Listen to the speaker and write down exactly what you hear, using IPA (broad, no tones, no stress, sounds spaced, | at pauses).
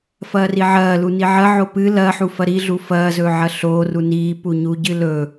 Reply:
f ɐː r i ʕ ɐː l u n i ʕ ɐ ʕ o p ɨ l ɐ ħ u f ɐ ɾ i ɮ u f ɐː z ɵː ʕ ɐ ɬ oː r u n iː p u ɲ u ɟ ɨ l ɵ